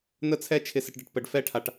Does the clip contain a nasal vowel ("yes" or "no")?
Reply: no